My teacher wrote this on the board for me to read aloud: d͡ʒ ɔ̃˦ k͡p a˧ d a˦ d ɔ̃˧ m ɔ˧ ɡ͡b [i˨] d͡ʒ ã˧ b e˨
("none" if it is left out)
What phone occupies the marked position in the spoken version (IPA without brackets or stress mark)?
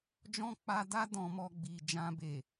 i˨